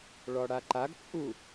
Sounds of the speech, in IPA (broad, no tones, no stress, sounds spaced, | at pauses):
ɭ ɔ ɽ a ǃ a ɡ t͡sʼ u